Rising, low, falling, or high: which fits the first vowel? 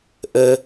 low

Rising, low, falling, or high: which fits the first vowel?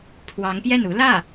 rising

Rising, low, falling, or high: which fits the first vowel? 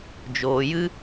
low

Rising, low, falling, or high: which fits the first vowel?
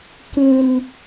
low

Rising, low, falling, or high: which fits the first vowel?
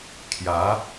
rising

